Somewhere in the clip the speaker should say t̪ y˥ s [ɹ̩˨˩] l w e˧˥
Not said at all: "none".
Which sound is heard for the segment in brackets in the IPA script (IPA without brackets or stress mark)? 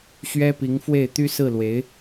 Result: ɹ̩˥˩